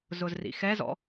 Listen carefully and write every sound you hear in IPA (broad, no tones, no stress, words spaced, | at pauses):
zʊzrḭxɛzɔ̰